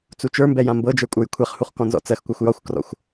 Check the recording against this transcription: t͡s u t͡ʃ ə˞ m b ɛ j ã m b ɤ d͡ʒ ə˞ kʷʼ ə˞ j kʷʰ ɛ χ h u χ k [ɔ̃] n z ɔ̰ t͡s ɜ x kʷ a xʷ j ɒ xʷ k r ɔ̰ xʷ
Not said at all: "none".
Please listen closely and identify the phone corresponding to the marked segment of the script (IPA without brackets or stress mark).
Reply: ɔ̃